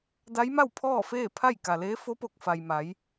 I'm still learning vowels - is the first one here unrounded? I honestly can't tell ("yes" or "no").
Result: yes